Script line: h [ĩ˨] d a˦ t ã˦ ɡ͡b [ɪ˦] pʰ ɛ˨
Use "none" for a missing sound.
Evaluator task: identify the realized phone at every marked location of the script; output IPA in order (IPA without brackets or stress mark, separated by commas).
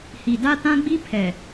i˨, i˦